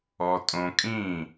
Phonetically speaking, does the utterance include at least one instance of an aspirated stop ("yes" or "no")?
no